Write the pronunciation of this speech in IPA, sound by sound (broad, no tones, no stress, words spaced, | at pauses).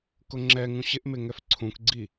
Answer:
kʊŋ͡ǁɛŋũ ɕɪʔmɪ ŋɛfǀʰũkɡ͡ǀi